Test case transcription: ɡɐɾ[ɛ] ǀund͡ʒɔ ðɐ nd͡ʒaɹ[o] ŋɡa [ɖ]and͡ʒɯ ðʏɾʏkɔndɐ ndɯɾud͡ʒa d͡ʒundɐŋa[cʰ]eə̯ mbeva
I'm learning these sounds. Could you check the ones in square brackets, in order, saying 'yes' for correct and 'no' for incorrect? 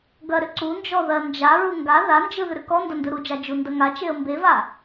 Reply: no, no, no, no

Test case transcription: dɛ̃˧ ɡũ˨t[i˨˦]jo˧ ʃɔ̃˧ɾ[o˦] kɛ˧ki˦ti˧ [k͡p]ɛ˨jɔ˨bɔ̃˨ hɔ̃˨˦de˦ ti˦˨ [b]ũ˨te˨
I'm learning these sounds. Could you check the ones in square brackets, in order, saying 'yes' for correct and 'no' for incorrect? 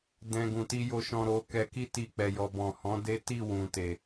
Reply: no, no, yes, no

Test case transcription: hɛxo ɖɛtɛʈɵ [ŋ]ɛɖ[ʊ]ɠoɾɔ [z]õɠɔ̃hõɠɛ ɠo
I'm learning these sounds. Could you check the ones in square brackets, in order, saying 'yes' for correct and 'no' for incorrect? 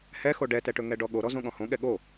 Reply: yes, no, yes

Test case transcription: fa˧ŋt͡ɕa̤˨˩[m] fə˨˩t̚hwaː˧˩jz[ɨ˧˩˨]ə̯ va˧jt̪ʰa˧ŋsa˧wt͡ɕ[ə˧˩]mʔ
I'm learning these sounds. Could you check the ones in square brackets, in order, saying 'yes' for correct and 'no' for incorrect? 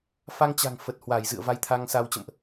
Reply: no, no, no

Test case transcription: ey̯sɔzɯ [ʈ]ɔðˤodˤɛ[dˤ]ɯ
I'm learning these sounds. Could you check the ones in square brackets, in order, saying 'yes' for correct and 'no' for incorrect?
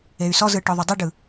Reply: yes, no

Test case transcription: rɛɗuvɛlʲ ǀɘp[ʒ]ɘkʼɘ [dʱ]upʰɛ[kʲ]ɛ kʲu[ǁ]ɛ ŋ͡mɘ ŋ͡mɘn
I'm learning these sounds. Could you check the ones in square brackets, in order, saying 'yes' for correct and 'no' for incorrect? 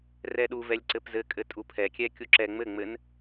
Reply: no, no, yes, yes

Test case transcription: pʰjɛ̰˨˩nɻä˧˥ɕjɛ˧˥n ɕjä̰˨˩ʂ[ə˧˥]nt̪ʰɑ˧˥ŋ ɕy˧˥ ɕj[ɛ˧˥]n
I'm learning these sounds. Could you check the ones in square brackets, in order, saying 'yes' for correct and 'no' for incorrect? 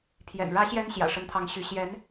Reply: yes, yes

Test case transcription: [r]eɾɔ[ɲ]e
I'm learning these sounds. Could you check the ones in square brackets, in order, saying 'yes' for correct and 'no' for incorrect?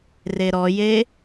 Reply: yes, no

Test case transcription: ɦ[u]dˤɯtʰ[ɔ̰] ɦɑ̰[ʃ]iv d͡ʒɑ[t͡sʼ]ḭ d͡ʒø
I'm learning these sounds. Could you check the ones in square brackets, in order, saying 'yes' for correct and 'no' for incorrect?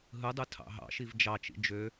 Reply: no, no, yes, no

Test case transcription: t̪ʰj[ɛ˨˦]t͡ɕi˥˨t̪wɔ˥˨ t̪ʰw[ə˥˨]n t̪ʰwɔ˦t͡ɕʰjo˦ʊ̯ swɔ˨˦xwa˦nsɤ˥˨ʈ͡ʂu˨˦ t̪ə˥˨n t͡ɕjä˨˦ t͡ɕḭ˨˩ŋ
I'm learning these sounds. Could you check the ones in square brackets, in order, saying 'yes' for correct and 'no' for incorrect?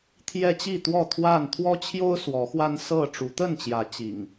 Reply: no, no

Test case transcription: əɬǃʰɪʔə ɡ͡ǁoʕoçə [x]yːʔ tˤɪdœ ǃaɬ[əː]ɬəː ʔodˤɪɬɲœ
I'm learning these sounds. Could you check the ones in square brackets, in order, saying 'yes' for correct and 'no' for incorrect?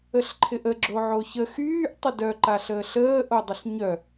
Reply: yes, yes

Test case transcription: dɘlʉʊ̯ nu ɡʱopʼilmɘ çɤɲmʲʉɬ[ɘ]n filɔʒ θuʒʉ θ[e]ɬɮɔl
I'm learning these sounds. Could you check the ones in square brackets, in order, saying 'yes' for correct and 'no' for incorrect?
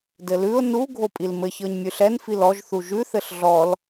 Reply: no, no

